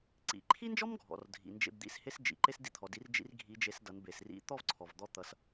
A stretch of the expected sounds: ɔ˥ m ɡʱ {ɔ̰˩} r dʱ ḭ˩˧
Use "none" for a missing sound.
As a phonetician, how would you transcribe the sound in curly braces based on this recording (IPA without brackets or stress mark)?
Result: ɔ̰˩